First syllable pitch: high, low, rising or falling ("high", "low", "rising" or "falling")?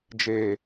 low